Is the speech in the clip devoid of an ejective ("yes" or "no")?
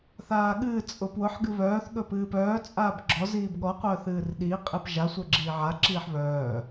no